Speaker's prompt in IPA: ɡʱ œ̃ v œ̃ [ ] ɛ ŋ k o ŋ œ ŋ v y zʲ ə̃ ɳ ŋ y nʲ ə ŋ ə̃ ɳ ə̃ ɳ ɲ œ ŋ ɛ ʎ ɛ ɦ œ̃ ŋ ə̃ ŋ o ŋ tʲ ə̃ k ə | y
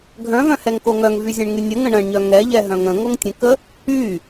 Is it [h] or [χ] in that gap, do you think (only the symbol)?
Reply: h